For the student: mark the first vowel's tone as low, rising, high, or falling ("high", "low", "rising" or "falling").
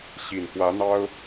low